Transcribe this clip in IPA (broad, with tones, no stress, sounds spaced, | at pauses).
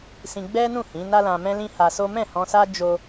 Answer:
s ĩ˧ ɡ͡b ɛ˦ n ũ˦˨ h ĩ˨˦ n a˦ l ã˧ m ɛ̃˦ l ĩ˦ h a˧ s o˦ m ɛ̃˦˨ h ɔ̃˧ s a˦ d͡ʒ o˦